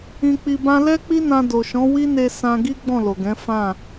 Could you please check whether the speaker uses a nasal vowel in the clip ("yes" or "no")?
yes